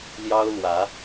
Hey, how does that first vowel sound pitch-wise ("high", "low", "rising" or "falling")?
high